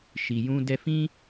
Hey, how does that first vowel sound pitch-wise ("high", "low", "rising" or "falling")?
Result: low